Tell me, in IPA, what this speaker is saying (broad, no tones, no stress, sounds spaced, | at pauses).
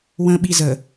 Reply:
w ə̃ ɓ i z ə